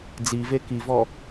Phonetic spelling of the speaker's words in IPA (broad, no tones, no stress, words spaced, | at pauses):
d͡zive kivɔ